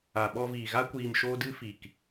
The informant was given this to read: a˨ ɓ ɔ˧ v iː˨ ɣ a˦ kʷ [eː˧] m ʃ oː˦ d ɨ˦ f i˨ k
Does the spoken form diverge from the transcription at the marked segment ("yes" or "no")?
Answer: yes